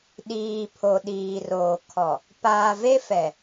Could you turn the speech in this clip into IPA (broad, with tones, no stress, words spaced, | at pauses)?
ɗiː˨ pʰo˨ɗiː˨roː˨ kʰɔ˨ | paː˨ve˦fɛ˨